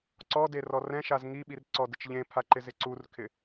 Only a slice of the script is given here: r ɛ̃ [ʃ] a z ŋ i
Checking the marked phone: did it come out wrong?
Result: no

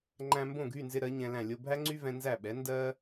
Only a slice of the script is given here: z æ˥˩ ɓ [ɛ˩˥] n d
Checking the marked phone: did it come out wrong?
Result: no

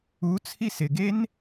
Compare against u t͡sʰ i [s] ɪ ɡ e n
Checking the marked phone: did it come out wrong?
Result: no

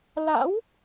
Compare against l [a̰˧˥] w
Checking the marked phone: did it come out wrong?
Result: no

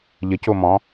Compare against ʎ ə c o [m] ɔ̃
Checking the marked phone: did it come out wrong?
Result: no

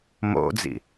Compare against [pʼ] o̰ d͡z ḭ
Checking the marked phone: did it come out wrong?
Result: yes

